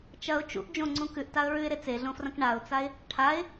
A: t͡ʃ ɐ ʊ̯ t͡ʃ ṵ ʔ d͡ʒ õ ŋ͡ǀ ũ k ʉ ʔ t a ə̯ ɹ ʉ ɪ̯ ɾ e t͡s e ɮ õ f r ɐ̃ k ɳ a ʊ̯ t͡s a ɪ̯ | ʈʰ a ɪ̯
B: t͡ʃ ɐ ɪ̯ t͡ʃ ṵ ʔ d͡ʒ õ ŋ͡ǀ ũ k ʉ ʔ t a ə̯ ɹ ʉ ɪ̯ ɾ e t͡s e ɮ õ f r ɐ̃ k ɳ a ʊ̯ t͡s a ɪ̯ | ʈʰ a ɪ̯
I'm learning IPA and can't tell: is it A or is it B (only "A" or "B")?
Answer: A